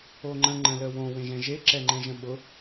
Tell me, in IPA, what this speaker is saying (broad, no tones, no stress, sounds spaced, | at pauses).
o ŋ͡ǃ ə̃ ŋ͡ǃ ə̃ l ə w õ w ẽ ʒ ɛ̃ ʒ e ǁ ɛ ŋ͡ǃ ɛ̃ ʒ ə̃ ɓ ʊ